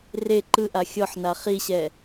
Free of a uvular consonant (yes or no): no